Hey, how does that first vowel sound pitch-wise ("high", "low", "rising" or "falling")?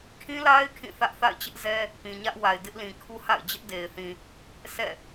high